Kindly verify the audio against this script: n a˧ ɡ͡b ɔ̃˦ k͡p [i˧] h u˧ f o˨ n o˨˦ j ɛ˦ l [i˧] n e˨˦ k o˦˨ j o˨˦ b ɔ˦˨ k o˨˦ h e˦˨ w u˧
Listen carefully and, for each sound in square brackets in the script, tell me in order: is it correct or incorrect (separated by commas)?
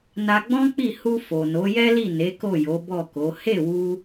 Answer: incorrect, incorrect